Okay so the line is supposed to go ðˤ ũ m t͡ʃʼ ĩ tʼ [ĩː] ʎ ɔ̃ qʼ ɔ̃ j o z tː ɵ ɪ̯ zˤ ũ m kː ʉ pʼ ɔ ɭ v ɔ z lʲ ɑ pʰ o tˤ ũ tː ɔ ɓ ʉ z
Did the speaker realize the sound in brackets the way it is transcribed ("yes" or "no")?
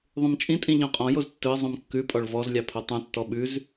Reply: no